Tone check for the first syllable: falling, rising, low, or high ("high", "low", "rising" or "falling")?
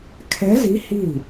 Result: rising